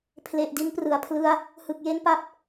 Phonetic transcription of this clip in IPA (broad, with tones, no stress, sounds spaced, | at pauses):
pʰ l e˨˩ ʔ d i˦˥ n p r ɯ˩˦ a̯ pʰ l ɯ˦˥ a̯ | h ɯ˨˩ k̚ j e˦˥ n p a˦˥ p̚